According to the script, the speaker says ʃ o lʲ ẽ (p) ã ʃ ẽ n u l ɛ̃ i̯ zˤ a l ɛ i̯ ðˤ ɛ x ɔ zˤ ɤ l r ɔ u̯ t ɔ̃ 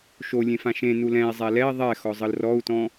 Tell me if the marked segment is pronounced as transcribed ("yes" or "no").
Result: no